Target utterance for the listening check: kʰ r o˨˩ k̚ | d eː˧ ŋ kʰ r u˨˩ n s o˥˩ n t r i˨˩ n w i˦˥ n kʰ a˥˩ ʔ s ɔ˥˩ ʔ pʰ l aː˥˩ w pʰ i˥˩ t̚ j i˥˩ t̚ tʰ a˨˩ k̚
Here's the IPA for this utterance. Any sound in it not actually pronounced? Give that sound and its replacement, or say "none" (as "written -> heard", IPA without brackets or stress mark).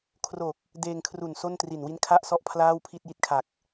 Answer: tʰ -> kʰ